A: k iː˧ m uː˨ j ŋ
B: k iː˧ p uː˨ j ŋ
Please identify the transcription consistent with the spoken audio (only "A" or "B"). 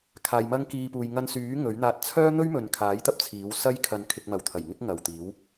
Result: B